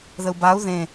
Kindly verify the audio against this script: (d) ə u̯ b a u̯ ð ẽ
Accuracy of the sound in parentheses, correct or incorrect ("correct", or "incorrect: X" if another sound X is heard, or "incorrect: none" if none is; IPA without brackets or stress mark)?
incorrect: ð